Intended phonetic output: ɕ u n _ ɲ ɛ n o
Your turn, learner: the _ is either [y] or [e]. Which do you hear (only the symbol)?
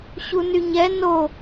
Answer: y